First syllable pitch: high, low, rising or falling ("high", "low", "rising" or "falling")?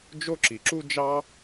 high